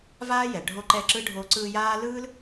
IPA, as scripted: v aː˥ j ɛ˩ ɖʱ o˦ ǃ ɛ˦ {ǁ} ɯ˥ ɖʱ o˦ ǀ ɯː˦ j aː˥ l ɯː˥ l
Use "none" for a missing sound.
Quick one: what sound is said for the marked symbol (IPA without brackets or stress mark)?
ǁ